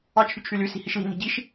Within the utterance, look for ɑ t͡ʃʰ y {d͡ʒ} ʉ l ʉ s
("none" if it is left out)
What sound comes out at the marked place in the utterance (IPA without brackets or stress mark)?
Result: t͡ʃʰ